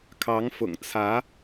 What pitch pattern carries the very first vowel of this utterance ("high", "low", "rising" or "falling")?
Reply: rising